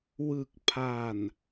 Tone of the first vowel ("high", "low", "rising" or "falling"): low